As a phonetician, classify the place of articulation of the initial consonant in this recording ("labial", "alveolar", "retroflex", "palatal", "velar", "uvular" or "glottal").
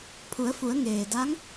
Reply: labial